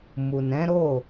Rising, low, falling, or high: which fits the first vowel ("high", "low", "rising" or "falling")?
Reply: low